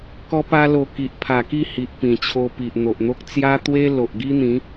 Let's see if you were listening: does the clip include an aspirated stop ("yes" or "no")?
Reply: yes